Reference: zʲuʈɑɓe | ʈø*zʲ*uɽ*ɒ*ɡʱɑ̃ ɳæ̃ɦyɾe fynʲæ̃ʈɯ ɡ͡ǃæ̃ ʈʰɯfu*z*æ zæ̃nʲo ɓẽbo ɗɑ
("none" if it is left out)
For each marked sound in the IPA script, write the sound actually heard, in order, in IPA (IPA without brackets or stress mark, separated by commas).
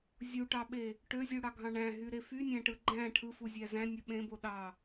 zʲ, ɑ, zʲ